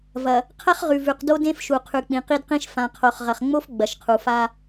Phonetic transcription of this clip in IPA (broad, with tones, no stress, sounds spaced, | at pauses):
v ɐ˨ | qʰ ɐ˦ χ ʁ ʉ˨ v ʉ˨ q d o˦ d ẽ˦ f ʃ u˨ qʰ ʉ˨ k͡p ĩ˨ q i˦ d q ĩ˦ ʃ f ã˨ qʰ o˨ χ ʁ ɐ˨ χ ŋ͡m o˦ f ɡ͡b ɐ˨ ʃ qʰ u˨ f a˦